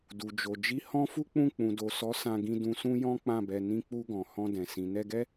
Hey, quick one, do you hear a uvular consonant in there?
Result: no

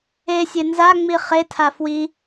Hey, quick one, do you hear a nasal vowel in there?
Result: no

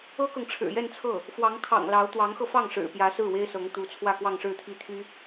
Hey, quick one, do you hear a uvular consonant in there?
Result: no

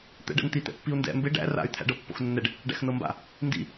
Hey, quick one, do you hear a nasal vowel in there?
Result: no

